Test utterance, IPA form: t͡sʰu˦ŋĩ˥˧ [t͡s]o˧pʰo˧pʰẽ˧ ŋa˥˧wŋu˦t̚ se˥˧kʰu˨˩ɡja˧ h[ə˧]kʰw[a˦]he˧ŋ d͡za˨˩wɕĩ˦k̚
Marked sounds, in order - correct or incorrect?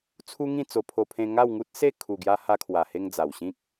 correct, incorrect: a˧, incorrect: a˨˩

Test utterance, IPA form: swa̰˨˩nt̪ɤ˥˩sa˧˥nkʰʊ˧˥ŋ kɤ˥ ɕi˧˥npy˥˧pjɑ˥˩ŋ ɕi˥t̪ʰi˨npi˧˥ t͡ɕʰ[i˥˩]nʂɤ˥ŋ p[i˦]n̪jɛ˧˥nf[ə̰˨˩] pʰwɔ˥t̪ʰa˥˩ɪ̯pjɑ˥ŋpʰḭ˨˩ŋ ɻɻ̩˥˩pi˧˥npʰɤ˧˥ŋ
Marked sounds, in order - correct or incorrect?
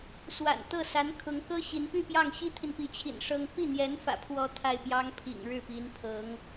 incorrect: ḭ˨˩, incorrect: i˥˩, incorrect: ä̰˨˩

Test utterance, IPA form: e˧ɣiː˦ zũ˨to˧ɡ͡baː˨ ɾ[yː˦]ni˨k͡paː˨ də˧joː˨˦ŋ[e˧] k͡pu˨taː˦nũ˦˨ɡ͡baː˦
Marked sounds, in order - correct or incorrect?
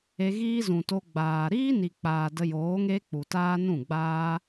incorrect: iː˦, incorrect: e˦

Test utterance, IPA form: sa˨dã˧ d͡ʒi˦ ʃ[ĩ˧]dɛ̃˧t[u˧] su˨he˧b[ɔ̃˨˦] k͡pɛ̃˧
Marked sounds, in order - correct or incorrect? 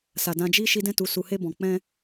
incorrect: i˧, incorrect: u˨, incorrect: ɔ̃˨

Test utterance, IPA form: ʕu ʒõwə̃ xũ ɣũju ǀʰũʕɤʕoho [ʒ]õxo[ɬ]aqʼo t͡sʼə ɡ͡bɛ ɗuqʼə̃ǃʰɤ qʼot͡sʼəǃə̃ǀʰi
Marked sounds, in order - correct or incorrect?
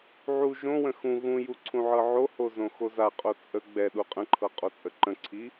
incorrect: z, incorrect: z

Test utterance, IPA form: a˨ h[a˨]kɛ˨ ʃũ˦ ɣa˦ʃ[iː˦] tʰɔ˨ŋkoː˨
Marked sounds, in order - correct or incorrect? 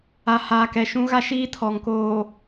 incorrect: aː˨, correct

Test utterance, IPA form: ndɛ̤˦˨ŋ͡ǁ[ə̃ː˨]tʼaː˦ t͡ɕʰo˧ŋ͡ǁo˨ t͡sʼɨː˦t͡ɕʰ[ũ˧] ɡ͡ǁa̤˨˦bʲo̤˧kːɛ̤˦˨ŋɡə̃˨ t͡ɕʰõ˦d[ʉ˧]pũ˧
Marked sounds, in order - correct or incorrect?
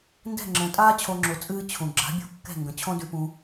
correct, incorrect: ũ˨, correct

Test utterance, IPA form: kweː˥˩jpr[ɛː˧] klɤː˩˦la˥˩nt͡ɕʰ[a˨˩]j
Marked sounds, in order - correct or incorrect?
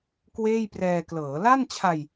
correct, incorrect: a˧

